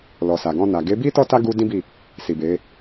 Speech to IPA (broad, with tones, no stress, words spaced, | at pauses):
lɔ˨sa˨ɡɔ̃˧na˨ ɡe˨˦bi˦ tɔ˦ta˦ ɡu˧ dĩ˦bi˦˨ | si˨be˨˦